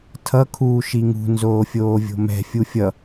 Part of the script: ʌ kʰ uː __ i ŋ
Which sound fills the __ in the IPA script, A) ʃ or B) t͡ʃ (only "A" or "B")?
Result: A